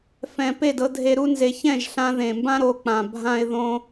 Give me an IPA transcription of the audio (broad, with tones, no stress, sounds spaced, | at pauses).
f ɛ̃˨ p e˦˨ d ɤ˧ dʱ e˧ ɾ u˦ n z e˧ ç ɛ̃˦˨ ʒ ɬ ã˧ ð ẽ˨ m b ã˦ ɾ o˧ k͡p ã˨ bʱ ã˦ ɪ̯ ð õ˦